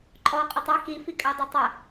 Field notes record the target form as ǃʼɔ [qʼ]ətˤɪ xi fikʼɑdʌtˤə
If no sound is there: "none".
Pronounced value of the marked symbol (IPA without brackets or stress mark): qʼ